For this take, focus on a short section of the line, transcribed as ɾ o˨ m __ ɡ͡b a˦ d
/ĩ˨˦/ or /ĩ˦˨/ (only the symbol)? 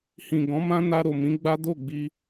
ĩ˨˦